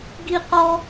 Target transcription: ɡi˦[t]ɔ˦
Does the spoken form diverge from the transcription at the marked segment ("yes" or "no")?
yes